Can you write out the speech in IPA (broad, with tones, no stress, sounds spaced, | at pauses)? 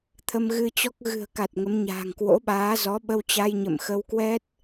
t̪ʰ ə˧ m ɣ ɨ˧ t͡ɕ ɔ˦˥ k̚ ɣ ɨ̤˨˩ ə̯ k a˨˩ t̚ ŋ ə˨˦ m ɲ a̤ː˨˩ ŋ k w o̰˧˥ ɓ aː˨˦ z ɔ˨˦ ɓ ə˧ w t͡ɕ a˧ j ɲ ə̰˧˨ m x ə˧ w k w ɛ˦˥ t̚